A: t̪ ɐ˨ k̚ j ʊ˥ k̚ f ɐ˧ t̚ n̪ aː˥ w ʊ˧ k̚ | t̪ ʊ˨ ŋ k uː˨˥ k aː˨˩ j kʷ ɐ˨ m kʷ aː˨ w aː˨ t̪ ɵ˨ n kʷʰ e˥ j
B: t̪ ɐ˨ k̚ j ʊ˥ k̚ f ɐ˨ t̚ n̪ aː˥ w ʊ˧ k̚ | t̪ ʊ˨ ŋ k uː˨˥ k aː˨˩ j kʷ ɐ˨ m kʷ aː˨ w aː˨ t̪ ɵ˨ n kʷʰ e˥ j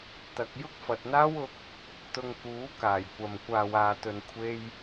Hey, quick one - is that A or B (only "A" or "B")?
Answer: B